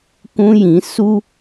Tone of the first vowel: high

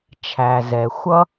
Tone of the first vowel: low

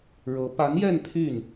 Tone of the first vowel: rising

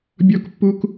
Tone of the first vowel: high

